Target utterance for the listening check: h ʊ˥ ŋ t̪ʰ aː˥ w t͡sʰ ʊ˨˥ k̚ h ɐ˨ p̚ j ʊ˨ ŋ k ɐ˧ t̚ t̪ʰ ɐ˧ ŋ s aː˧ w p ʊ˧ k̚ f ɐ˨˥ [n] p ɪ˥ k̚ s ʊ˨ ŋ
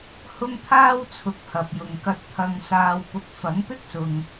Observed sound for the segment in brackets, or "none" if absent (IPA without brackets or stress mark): ŋ